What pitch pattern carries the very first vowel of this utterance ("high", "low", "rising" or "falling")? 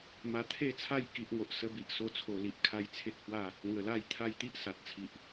low